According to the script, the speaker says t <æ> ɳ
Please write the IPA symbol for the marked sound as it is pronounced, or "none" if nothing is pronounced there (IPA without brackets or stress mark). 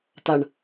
a